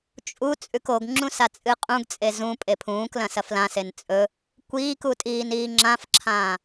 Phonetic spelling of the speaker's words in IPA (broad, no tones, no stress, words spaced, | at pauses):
t͡ʃʼu t͡sʼʉkoɡŋ͡ǁũ sat͡sʼɨqʼũɡt͡sʼe zũ pʼepʰũːklɐ̃ sɐflãsen t͡sʼɵ | kʷiːku tʼiːniːŋ͡ǁãfǁʰãː